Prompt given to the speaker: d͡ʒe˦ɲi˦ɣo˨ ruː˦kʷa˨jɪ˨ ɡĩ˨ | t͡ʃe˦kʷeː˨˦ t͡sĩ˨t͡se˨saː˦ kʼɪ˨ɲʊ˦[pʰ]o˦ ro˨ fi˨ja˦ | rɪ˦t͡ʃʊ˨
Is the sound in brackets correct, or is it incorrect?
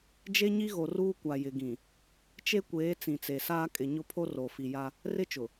correct